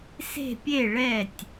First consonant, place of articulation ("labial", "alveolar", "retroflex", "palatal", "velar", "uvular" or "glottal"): alveolar